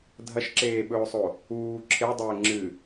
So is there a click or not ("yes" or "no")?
yes